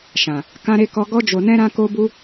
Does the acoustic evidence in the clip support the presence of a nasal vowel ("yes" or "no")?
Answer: yes